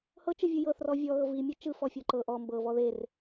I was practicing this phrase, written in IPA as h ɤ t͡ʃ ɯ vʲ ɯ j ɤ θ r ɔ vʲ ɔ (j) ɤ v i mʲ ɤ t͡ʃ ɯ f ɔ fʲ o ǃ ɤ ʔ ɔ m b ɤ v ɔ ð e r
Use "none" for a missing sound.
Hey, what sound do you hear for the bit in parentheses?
ɣ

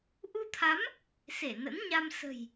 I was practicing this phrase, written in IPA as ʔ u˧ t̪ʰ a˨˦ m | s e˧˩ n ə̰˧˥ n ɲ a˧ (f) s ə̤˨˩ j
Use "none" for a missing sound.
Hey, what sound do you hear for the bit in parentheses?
m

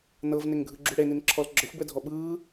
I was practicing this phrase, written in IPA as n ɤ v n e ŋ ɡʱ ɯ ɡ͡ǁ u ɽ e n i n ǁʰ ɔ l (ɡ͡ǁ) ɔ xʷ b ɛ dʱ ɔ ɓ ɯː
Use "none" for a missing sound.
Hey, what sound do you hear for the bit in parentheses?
ɡ͡ǁ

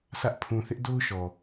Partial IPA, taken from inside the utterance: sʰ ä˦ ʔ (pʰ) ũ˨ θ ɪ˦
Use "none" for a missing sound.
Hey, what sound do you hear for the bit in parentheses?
pʰ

